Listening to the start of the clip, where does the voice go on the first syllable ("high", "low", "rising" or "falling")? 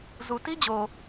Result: low